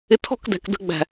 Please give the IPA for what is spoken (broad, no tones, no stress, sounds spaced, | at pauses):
ɪ tʰ ɔ̤ k d æ̤ k d ə̤ ɡ͡b æ̤